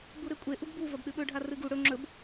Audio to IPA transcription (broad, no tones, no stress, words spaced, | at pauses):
buɾekʷʼe ʔuɡbu vɐbɗɨɓɵ ɖʱarɨɡu ɽɵ ŋ͡ǁɵb